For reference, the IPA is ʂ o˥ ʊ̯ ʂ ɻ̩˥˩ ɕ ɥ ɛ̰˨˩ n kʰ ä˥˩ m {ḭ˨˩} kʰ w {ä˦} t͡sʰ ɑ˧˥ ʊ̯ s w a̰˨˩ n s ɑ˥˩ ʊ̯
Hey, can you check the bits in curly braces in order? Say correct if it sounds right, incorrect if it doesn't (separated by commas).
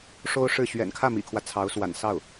correct, correct